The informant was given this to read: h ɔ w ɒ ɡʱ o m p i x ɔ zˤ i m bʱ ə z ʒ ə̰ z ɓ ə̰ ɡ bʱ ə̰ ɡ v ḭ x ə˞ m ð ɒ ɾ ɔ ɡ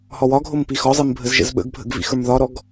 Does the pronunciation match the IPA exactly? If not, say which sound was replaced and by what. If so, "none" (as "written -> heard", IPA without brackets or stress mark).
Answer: none